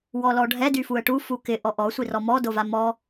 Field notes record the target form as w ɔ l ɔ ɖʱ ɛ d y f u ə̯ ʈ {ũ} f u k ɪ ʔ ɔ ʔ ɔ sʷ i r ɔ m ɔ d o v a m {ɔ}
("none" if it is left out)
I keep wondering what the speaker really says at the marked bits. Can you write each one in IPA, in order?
u, ɔ

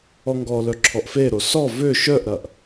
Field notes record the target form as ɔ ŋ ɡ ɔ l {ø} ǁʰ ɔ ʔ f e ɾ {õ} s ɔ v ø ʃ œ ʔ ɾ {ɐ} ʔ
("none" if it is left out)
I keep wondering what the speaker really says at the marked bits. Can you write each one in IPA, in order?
œ, o, ɐ

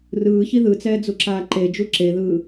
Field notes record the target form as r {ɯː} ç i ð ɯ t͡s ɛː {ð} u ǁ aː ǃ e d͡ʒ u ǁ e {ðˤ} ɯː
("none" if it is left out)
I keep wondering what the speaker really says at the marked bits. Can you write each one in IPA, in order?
ɯː, d͡z, ð

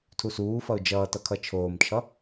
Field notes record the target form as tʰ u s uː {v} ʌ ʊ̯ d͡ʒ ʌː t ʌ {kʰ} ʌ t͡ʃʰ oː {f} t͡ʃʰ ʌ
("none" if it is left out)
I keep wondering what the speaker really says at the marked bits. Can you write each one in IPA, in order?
f, kʰ, m

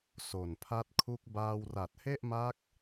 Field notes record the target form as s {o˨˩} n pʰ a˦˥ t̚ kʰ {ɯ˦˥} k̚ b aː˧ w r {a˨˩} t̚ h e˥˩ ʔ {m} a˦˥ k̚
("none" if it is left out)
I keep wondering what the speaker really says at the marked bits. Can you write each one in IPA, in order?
o˨˩, u˦˥, a˨˩, m

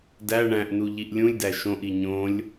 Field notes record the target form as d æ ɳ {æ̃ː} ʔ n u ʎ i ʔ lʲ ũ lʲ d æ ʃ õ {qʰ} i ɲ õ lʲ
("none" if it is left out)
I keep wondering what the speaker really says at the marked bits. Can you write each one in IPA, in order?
æ̃, ʔ

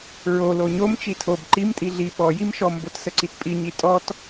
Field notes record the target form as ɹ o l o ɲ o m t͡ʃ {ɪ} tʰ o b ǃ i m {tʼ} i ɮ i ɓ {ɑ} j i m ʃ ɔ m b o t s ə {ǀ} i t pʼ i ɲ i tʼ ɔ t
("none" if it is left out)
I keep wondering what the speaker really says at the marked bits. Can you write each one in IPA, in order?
i, tʼ, ɔ, ǀ

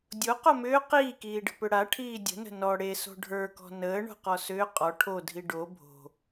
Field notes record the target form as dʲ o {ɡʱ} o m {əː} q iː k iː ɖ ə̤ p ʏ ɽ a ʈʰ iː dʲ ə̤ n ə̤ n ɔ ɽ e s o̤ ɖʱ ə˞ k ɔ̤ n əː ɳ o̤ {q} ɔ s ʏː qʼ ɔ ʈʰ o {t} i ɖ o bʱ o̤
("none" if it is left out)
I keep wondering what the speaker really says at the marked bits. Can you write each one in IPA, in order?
q, ʏː, q, dʱ

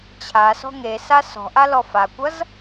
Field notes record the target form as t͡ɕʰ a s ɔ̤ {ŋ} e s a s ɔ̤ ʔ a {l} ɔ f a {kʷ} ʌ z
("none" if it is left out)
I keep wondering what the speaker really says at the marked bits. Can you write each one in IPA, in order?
ŋ, l, kʷ

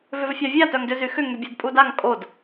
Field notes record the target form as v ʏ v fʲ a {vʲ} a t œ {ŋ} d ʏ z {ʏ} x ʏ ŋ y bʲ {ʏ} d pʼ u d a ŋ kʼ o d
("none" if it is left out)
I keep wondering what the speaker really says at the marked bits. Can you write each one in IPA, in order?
vʲ, ŋ, y, ɛ

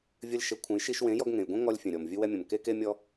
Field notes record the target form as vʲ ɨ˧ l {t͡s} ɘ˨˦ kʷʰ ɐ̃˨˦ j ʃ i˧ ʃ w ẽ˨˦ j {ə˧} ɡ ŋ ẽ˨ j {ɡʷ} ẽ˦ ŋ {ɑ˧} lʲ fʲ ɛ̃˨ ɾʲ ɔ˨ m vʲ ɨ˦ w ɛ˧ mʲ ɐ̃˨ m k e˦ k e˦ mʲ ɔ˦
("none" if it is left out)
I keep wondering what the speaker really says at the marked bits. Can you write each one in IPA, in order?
ʃ, ɔ˧, ɡʷ, ɔ˧

